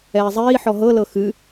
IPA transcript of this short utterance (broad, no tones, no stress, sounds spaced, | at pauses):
ɛː zˤ iː ħ ɔ ɦ ɤ l ɤ x ɨ